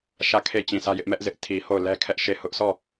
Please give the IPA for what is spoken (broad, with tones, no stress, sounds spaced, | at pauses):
ʃ ä˦˨ kʰ e˦˨ t͡ɕ ĩ˨ s ä˦ j ɪ˦ ʔ m ɛ˦ ʔ z ɪ˦ ʔ tʰ i˨ h o˦˨ ʊ̯ l ɛ˦ kʰ ɛ˦ ʔ ʃ e˦˨ h ʊ˦ ʔ sʰ ɔ˦˨